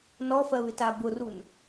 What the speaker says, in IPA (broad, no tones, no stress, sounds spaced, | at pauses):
n ɔ f ɜ β ɪ t a b ʊ r u n